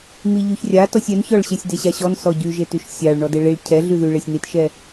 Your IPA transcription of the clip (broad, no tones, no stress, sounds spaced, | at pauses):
m i ʎ y ç rʲ a t ɔ sʲ ɛ n ç ɔ ɭ ɕ e sʲ d e ɕ a ɕ ɔ n s ɔ ɟ y ʒ e t y ʃ sʲ a ɭ ɳ ɔ d e ɭ i ɭ cʰ ɛ ɮ y ð y ɭ e sʲ n i t ʃ ɛ